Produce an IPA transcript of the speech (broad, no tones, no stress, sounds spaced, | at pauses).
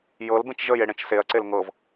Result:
j ɤ l b ẽ t͡ʃ ʒ ə j e ɽ ẽ t͡ʃ s e ɐ̯ ǀ e l ŋ ɤ v